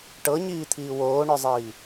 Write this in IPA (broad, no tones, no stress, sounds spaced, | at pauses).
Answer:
ʈ ɤ ɲ iː t̪ʰ iː w oː ɳ œ zˤ iː